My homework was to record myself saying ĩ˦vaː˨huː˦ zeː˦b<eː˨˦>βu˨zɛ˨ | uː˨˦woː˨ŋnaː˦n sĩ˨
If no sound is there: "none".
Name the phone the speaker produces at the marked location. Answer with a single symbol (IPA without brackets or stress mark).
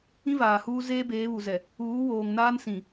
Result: eː˨˦